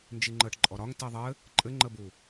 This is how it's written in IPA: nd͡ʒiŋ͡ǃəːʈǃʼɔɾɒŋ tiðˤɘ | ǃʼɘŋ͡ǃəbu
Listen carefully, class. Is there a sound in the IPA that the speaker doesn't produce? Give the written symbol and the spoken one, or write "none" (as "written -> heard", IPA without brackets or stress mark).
none